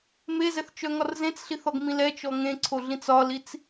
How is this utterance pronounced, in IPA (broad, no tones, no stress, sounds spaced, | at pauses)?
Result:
m e z ɛ θ t͡ʃ œ ŋ ɒ r z ẽ t͡s ɬ i θ ɔ ɡ m ĩ l ɛ t͡ʃ ɔ ŋ ẽ ǀʰ o ɮ ĩ t͡s ɒ l i t͡s